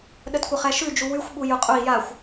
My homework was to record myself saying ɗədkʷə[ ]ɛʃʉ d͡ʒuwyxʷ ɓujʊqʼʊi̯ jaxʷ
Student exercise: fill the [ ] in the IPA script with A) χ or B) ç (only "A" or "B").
A